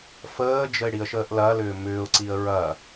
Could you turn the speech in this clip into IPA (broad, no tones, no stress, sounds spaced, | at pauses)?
f əː d͡ʒ ə ɪ̯ ɽ i ə̯ ʃ əː ʔ l ɐ l ʏː m ʏː ʊ̯ ǀ i ə̯ ɹ ɐ